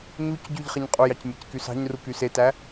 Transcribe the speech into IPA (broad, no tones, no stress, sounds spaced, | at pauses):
ɲ u c ɟ y ʎ χ e ɲ qʼ u j ɑ c mʲ æ c k y s ɑ̤ ɲ r u k y s e t æ